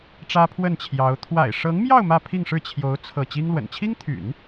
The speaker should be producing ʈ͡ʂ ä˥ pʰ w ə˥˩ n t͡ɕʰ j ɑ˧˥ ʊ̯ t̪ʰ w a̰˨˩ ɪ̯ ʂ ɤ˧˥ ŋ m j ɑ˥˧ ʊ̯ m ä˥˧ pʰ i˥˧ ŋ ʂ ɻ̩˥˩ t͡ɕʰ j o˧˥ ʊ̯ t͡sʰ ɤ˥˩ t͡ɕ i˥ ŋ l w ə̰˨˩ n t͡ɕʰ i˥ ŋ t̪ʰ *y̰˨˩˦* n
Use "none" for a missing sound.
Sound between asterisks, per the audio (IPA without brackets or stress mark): y̰˨˩˦